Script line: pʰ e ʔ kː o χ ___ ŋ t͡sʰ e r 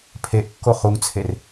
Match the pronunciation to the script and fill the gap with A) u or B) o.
A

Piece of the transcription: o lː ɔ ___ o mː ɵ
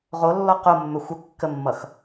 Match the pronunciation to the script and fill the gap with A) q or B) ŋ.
A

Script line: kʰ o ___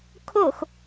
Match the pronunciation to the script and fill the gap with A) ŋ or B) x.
B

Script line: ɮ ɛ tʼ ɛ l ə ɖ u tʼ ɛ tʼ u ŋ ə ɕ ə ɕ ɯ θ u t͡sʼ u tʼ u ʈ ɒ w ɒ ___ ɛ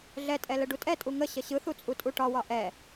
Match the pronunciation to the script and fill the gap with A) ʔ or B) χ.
A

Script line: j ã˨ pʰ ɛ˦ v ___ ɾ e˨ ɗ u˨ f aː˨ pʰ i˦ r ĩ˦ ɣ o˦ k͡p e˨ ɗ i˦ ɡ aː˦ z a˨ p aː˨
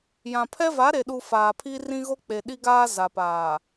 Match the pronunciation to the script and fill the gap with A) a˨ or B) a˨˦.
B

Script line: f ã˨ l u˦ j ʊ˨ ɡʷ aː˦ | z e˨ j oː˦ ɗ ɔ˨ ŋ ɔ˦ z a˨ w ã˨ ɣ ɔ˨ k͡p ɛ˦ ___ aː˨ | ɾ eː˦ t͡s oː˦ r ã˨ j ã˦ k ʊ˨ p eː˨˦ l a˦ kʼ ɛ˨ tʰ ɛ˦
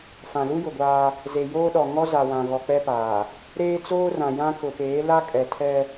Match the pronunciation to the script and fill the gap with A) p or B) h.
A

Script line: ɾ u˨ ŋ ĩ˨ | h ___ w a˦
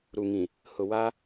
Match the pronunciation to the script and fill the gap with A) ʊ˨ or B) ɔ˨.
A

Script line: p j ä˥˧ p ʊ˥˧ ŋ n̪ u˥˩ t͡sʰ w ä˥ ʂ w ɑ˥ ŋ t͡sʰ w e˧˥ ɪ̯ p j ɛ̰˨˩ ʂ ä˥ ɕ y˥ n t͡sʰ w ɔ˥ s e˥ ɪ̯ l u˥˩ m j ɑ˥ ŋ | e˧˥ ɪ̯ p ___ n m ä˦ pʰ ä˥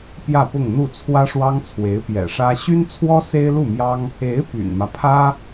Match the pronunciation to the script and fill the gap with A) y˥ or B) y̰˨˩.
B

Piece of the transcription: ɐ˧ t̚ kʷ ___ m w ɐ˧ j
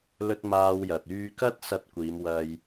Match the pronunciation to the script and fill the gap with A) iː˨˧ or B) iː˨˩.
A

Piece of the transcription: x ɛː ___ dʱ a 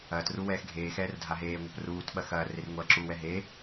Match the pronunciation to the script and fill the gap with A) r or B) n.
A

